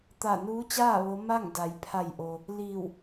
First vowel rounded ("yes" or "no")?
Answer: no